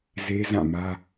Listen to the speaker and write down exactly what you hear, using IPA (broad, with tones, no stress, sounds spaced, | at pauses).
z e˦ z ã˦˨ m ä˦